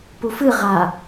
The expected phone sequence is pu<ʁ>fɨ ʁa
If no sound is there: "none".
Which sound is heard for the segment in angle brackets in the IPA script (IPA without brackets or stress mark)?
none